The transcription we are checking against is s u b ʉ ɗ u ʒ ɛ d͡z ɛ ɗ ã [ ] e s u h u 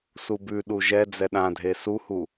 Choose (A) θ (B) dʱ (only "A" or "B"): B